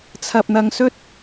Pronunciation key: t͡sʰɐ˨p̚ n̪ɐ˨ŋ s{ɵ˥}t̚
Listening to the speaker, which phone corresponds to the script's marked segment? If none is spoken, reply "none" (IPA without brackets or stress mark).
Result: ɵ˥